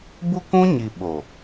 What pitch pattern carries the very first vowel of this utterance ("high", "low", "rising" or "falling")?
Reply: high